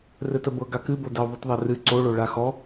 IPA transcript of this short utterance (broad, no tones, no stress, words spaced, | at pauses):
rɘtəbɤ ɡakɨbodɛu̯ ðˤɨtðˤɛrɨ ǀoɭo ɭaxɔ